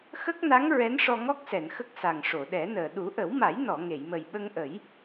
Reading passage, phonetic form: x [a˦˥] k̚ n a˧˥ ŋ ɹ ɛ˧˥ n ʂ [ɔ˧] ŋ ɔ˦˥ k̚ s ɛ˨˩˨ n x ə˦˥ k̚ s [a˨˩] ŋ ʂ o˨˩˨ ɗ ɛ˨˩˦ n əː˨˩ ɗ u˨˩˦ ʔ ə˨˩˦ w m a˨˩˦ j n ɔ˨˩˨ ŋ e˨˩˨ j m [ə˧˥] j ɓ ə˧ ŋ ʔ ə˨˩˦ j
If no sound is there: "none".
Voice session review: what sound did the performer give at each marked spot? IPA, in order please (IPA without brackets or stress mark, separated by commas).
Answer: ə˦˥, ɔ˧, a˨˩, ə˨˩